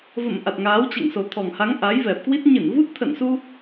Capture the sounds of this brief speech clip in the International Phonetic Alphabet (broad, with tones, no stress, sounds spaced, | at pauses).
v ə̰˧˨ m ʔ a˨˩ t̚ ŋ aː˨˦ w t͡ɕ ɛ̰˧˨ ŋ s o˨˩ t̪ʰ ɔ˨˩ ŋ h a˨˦ ŋ ʔ a˨˦ j v ɛ˨˩ p̚ k w i˦˥ t̚ ɲ ɨ˧˩ n v u˦˥ t̚ t̪ʰ ə̰˧˨ n s u˧